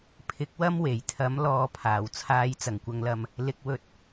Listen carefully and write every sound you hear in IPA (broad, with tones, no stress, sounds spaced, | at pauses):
pʰ ɪ˨˥ k̚ w ɐ˥ m w e˨˩ j t̪ʰ ɐ˨˥ m l ɔː˨˧ pʰ aː˨˩ w t͡sʰ aː˨˧ j t͡s ɐ˨˩ ŋ kʷ ɐ˨ ŋ l ɐ˨ m | l ɪ˧ k̚ w ɵ˧ t̚